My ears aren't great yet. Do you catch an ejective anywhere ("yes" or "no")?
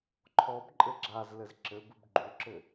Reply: yes